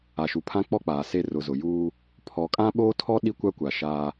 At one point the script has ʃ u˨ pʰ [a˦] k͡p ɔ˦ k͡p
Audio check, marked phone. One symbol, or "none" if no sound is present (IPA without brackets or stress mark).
ã˦